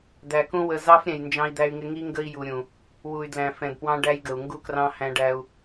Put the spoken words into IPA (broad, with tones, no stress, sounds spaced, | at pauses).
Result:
d̪ æ˨ k ũ˦ w ə˨ z ɑ˦ f ɾʲ ɛ̃˨ j n d͡ʒ ɑ̃˦ i̯ d̪ æ˦ y̯ ŋ ɪ˦ ŋ i˦ ŋ ɡ ə˦ i̯ j u˨ ɾʲ ũ˨ | w u˨ y̯ d l æ̃˨ f ɛ̃˨ d p w ɑ̃˦ ɖ æ˦ j ɡ ə˨ u̯ ŋ ɡ u˦ k r ɑ̃˦ h æ̃˦ ɖ æ˦ u̯